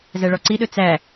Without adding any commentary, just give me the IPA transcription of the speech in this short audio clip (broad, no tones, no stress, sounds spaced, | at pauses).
z æ ɭ ɔ ǀ i ɗ ɵ t͡s æ